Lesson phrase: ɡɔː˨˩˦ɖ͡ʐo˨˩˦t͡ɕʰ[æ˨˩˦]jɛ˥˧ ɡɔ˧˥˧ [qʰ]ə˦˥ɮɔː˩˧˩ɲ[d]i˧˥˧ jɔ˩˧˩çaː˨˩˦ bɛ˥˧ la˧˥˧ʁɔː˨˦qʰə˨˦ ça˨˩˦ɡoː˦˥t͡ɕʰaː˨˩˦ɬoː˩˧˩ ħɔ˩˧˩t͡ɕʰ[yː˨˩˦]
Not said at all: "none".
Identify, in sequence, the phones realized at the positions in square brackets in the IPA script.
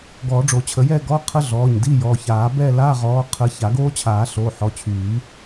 ə˨˩˦, qʰ, d, yː˨˩˦

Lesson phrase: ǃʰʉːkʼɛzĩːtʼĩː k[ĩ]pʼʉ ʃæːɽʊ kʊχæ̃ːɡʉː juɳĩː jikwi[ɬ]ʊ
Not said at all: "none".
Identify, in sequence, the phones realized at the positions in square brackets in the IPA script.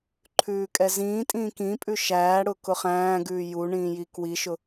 ĩ, ʃ

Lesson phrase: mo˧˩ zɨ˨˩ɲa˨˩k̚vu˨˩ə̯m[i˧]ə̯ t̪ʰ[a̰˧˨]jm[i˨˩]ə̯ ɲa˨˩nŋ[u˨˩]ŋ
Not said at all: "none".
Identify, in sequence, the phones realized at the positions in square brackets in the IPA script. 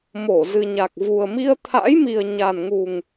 i˧, a̰˧˥, i˨˩, u˨˩

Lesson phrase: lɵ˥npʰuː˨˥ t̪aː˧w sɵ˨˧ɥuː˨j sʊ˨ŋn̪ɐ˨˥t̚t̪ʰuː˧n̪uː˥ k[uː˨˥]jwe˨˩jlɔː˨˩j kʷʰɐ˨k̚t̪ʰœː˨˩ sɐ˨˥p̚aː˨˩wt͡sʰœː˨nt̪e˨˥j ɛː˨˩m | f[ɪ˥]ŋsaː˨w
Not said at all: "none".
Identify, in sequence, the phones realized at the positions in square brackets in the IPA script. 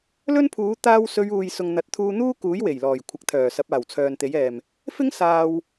uː˨˥, ɪ˥

